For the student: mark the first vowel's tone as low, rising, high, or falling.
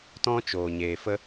high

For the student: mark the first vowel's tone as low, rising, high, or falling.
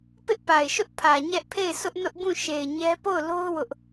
high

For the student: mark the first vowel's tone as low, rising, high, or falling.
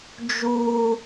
high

